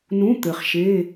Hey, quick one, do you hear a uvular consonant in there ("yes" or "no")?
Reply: yes